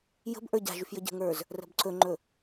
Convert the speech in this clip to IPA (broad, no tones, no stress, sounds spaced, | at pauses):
j ə̤ b ʔ ə˞ ɟ a̤ ʒ y f j ə ɟ ə̤ ŋ ə˞ z | r ə̤ b ǀ ɵ ŋ͡ǃ ɵ